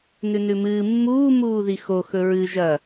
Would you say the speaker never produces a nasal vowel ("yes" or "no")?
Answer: yes